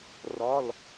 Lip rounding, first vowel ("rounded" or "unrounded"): rounded